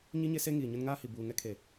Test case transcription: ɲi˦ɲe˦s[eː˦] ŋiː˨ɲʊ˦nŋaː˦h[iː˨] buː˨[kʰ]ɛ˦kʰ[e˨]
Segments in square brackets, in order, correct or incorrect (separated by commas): incorrect, incorrect, incorrect, correct